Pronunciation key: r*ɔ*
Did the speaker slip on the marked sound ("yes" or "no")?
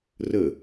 yes